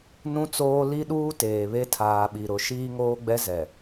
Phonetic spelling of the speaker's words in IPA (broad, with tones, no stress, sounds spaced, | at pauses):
n ũ˦ t͡s oː˦ l i˦ ɗ uː˦ t eː˨ β e˦ tʰ aː˨ ɓ i˨ ɾ ʊ˨˦ ʃ iː˦ ŋ oː˦ ɡ͡b ɛ˦ z ɛ˨